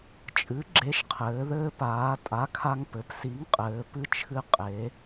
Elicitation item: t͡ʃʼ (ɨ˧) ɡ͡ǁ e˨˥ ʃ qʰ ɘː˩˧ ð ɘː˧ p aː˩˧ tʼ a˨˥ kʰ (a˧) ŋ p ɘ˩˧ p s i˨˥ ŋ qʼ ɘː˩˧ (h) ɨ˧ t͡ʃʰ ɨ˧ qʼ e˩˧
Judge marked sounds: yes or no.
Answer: no, yes, no

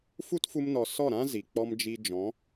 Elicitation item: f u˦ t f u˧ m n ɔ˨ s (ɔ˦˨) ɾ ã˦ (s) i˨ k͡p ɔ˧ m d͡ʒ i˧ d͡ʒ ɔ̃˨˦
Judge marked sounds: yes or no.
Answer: yes, no

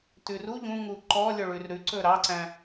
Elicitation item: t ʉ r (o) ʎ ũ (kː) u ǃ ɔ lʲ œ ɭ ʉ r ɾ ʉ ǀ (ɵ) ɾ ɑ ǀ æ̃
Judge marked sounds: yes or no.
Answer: no, no, yes

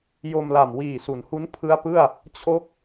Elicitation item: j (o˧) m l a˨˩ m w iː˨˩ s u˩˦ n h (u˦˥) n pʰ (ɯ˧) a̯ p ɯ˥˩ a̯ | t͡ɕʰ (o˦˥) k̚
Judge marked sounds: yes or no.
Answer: yes, yes, no, yes

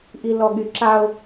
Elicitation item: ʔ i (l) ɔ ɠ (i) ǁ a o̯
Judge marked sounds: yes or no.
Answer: yes, no

